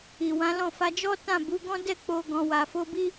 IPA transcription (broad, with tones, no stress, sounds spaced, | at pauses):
i˨ w ã˨˦ l ɔ̃˦˨ f a˧ d͡ʒ ɔ˦ t ã˦˨ b u˨˦ ɡ ɔ̃˦ d ɛ˦˨ k͡p o˧ ɡ ɔ̃˧ w a˧ f o˦ b i˦